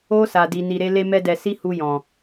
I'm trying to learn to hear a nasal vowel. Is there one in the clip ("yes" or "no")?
yes